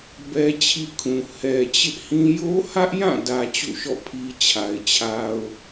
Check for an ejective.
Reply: absent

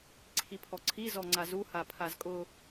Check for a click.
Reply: present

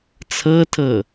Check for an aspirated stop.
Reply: present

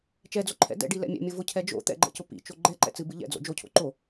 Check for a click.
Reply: present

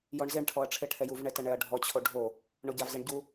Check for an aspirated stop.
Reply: present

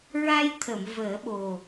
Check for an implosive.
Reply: present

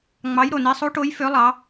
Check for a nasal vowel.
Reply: absent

